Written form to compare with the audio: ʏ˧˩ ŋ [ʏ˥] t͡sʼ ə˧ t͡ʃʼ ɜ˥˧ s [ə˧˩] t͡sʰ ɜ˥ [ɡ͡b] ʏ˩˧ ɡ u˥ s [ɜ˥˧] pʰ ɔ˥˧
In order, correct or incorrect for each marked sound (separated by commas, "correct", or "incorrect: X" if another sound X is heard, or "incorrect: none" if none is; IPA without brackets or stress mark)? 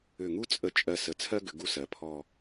incorrect: u˥, correct, incorrect: ɡ, incorrect: ɜ˩˧